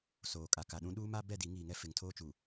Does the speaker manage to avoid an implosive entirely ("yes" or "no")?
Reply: no